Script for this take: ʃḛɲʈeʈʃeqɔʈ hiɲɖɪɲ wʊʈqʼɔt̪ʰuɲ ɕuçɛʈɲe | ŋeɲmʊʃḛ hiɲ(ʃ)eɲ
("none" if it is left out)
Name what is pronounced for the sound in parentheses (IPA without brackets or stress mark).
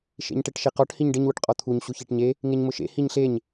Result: ɬ